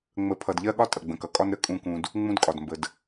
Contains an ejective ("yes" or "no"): yes